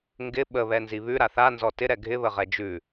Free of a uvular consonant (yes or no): no